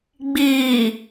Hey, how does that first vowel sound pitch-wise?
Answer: low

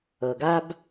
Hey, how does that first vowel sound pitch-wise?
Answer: low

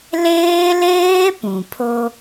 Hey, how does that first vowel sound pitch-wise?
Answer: high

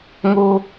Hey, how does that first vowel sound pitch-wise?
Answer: low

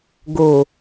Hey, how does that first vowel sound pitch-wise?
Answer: low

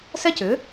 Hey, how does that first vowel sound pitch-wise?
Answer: high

